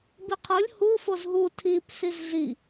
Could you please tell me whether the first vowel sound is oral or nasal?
oral